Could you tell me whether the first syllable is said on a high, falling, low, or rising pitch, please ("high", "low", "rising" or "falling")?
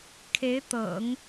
rising